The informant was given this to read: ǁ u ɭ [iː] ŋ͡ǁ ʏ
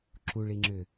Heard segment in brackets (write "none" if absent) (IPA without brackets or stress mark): i